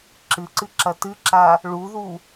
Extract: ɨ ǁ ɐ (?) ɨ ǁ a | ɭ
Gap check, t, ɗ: t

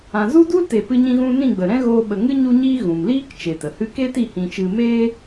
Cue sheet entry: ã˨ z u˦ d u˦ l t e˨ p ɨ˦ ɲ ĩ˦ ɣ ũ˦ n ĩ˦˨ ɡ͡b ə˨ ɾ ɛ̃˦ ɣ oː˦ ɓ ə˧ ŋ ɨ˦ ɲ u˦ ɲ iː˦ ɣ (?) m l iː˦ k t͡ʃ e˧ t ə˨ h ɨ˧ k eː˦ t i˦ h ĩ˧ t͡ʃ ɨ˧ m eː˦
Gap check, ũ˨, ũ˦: ũ˨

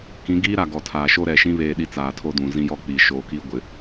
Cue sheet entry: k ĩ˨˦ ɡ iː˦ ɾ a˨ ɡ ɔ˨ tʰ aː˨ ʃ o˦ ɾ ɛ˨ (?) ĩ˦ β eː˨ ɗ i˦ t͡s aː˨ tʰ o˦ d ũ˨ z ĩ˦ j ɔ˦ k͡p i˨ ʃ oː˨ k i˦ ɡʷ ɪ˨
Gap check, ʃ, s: ʃ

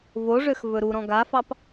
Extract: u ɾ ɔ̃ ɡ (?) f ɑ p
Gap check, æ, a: a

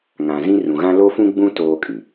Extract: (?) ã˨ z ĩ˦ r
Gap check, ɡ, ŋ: ŋ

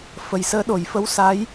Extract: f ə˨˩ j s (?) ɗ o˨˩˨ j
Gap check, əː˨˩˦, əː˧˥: əː˧˥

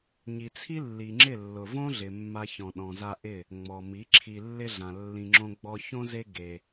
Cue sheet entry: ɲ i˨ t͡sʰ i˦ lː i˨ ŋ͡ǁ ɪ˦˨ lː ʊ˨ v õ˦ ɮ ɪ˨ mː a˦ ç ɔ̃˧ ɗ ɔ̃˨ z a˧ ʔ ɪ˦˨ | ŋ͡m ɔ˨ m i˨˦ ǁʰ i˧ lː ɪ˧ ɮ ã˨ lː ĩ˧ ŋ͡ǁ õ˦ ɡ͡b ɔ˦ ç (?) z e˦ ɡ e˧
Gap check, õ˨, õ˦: õ˦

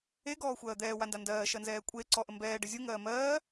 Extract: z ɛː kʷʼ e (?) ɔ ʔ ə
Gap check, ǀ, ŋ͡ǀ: ǀ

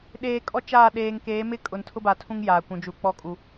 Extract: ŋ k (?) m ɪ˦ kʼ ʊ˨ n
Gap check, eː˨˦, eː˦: eː˨˦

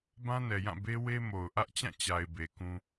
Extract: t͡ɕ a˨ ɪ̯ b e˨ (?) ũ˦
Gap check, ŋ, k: k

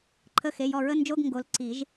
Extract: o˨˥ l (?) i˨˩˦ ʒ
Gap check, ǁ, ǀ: ǀ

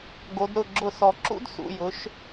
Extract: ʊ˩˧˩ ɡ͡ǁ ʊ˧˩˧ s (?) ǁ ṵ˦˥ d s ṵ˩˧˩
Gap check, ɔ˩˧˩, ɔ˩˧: ɔ˩˧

